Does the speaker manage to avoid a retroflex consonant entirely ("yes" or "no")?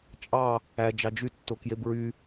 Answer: yes